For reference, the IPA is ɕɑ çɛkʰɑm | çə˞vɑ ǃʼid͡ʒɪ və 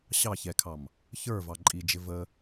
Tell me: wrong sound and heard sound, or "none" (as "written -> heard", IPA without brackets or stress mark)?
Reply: none